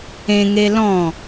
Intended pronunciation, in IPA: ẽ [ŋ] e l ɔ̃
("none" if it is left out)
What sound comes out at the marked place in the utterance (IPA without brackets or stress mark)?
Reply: ŋ